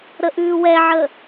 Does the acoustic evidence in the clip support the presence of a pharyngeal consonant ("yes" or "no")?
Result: yes